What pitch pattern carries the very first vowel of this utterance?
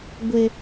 high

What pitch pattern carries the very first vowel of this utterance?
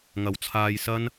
rising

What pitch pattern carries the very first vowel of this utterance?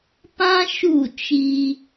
high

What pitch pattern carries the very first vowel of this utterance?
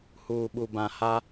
low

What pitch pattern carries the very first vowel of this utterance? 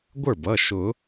falling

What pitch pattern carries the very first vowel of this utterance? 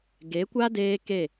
rising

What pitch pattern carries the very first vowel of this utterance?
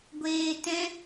high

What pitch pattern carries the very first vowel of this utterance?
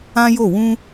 high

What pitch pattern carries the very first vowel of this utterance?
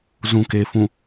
low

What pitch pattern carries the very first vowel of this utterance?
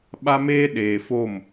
high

